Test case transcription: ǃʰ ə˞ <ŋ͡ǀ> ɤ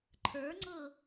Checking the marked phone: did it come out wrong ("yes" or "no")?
no